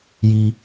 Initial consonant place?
palatal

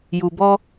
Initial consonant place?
palatal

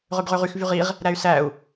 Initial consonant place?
uvular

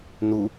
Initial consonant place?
alveolar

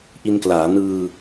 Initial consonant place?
glottal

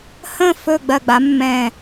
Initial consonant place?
glottal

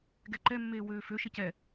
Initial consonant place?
velar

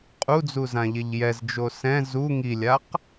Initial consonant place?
uvular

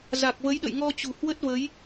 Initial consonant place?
alveolar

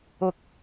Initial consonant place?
velar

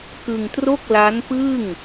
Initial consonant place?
velar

